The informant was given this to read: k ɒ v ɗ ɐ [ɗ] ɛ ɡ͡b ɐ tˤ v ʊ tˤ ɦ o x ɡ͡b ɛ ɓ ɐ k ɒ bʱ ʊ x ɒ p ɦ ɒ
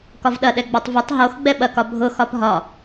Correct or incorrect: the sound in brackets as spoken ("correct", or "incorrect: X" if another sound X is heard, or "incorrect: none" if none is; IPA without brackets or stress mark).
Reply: correct